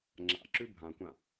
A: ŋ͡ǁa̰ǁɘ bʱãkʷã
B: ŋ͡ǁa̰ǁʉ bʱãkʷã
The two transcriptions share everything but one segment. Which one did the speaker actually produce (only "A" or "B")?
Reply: B